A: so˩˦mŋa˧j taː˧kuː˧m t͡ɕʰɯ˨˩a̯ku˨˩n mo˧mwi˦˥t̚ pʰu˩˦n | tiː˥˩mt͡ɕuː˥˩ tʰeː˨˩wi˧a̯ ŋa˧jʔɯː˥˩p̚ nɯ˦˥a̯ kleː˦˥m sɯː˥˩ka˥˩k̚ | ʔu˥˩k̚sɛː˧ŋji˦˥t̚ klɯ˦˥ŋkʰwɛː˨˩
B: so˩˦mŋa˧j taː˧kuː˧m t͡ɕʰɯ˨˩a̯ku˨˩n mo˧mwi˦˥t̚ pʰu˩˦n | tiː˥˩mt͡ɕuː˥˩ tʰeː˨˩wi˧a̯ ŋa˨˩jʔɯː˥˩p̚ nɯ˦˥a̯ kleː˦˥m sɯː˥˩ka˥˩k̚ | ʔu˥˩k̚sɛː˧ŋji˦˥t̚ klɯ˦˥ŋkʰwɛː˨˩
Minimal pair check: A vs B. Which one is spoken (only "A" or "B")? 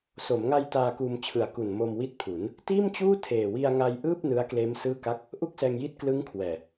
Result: A